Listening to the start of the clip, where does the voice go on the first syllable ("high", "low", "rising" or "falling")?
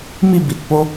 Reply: falling